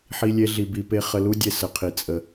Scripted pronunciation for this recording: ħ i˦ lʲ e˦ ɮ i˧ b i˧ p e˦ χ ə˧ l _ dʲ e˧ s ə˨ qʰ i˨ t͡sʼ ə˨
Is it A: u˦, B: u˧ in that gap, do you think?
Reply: A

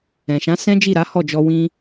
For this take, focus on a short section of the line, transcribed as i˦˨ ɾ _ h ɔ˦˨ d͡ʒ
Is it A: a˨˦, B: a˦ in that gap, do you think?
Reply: A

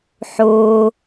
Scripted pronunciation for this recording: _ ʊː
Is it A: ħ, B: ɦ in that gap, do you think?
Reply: A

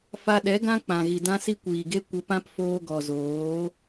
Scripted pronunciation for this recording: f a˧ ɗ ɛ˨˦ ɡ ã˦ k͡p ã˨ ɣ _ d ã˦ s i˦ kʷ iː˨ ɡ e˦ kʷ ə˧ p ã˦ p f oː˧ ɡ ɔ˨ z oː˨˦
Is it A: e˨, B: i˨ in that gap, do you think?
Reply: B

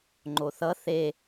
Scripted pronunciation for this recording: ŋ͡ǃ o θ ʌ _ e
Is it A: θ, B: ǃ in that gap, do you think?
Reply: A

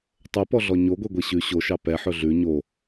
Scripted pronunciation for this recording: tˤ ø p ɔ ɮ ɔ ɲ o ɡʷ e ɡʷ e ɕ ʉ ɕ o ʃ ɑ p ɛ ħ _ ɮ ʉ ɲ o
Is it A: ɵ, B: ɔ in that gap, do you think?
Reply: A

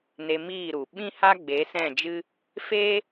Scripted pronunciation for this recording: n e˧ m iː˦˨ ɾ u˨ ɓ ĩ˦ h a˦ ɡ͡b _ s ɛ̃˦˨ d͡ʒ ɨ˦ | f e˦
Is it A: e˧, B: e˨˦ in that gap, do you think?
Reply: B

